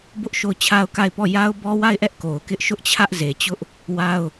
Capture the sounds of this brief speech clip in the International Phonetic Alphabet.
b ʊ˦ ʔ ʃ o˦˨ ʊ̯ t͡ɕʰ a˦ ʊ̯ k a˦˨ ɪ̯ p ɔ˦˨ j a˦ ʊ̯ b ɔ˦ w a˦˨ ɪ̯ ʔ ɛ˦ ʔ k o˨ ʊ̯ k ɪ˦ ʔ ʃ ʊ˦ ʔ t͡ɕʰ ä˦ ʔ z e˨ t͡ɕ ʊ˦ ʔ | w a˦ ʊ̯

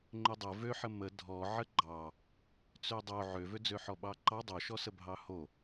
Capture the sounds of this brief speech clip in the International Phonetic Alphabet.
ŋ͡ǃ ø dˤ ə v ø ħ ə m ə dʱ ɔ ʕ ə ɡ͡ǃ ɑ | t͡s ø dˤ o ʕ ø v ø d͡z ø ħ ɔ ɓ ɑ ǃ ɑ dˤ o ʃ ɔ s ə bʱ ɑ h o

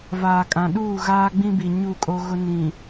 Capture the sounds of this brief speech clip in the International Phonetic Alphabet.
v aː˨ kʼ ã˨ ɗ uː˦˨ ɣ aː˦ ɡ͡b ĩ˦ b i˨ ɲ u˦˨ kʼ o˦ ɣ ʊ˦ n ĩ˨

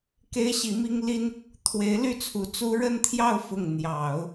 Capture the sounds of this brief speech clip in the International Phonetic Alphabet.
k e˥ ɪ̯ ɕ i˧˥ m i˥ ŋ l i˥ n | t̪ʰ w e˧˥ ɪ̯ l y˥˩ t͡sʰ u˧˥ t͡s u˥ ɻ ə˥˧ n t̪ʰ j ɑ˥˧ ʊ̯ f ʊ˥˩ ŋ n̪ j ɑ˨˩˦ ʊ̯

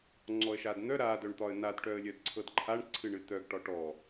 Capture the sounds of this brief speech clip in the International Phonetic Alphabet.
ŋ͡ǀ ɔ ə̯ ʃ a d n̪ œ ɾ a d œ ɳ t̪ ɒ ə̯ n a d ʈ œ ə̯ lʲ œ d ǀʰ ɤ d ǃʰ a ɳ ǀʰ ɨ ɳ ɨ t̪ œ ɡ ʈ ɒ ʈ ɔ

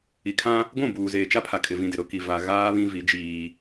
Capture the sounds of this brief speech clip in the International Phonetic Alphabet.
i˨ kʰ ã˦ | ɡʷ ũ˦˨ b uː˨ z eː˨ t͡ʃ a˦ pʰ a˨ kʼ ɪ˨ v ĩ˨ d ɪ˨ ɾ ʊ˦ k i˨ v a˨ ɣ aː˦ β ĩ˦ v i˨˦ d͡ʒ iː˦

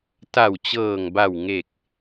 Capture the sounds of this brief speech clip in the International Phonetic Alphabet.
t a˨˩ w t͡ɕ ɤː˨˩ ŋ b a˨˩ w ŋ e˨˩ k̚

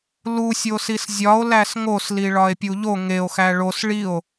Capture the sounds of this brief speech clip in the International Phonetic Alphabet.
l u sʲ o s i s zʲ ɒ o̯ l æ s ŋ o s l i ɭ ɒ e̯ pʲ u ʎ o ŋ e o̯ x æ ɭ o s ɭ i o̯

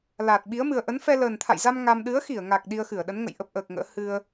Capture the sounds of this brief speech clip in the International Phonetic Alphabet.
l aː˨˩ t̚ ɓ i˨˦ ə̯ m ɨ˨˩ ə̯ ʔ ə˨˦ n f ɛ˧ l əː˨˩ n t̪ʰ a̰˧˨ j z a˧ m ŋ a˧ m ɗ ɨ˨˦ ə̯ x i˧˩ ə̯ ŋ a˨˩ k̚ ɗ i˧ ə̯ x ɨ˧˩ ə̯ ɗ ə˨˦ n ŋ ə̰˧˨ j ʔ ə˦˥ p̚ ʔ əː˨˩ k̚ ŋ ə̰ː˧˥ h ɨ˧ ə̯

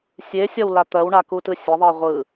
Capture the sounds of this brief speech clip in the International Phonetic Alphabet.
sʲ e sʲ ɒ w l a t̪ ɜ w ɳ a k u t ɯ sʲ ɐ ðˤ ɜ ʁʷ ɯ

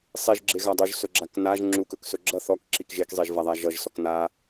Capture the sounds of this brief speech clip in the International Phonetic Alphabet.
sˤ i ʒ ɡ͡ǁ e ɣ a dˤ u ʒ s ɵ ɡ͡ǁ a k n a ʒ ŋ͡ǁ u k ɵ k s ɵ ɡ͡ǁ ʌ θ ɔ k ǁ i k ʒ e k zˤ i ʒ v a ðˤ a ʒ ʌ ʒ s ɔ k n a

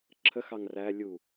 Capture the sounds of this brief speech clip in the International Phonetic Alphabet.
ǁʰ ə x ɑ ŋ r æ lʲ u

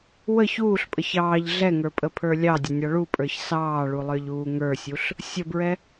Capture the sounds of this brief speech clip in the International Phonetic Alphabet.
w ə ç uː ɬ pʼ ə ç ɑː ʎ ɮ ɛ ŋ ə˞ pʼ ə pʰ ə˞ lʲ ɑ dʲ ə nʲ ɑ ɭ u pʼ ə˞ ç s ɑː ɭ u lˠ ə˞ ʎ uː ŋ ə˞ sʲ u ɬ | sʲ ə b ɹ ɛ

